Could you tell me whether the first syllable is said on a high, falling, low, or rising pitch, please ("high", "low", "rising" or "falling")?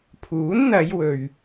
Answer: rising